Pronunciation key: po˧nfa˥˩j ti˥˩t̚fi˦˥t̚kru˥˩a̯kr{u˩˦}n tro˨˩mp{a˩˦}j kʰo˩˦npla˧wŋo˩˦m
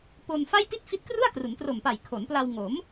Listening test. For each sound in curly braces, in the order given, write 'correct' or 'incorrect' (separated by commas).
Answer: correct, incorrect